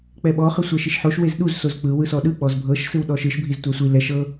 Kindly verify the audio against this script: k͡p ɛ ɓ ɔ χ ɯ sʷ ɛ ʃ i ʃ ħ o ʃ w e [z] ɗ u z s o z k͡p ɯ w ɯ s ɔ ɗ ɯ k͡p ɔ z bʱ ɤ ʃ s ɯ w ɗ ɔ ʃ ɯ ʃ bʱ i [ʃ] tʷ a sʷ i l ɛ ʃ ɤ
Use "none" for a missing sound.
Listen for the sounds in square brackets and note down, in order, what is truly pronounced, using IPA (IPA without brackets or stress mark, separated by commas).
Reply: z, z